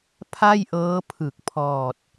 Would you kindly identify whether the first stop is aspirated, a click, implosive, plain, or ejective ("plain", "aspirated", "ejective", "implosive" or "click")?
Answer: aspirated